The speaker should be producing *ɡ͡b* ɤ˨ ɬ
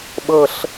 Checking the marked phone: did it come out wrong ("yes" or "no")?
yes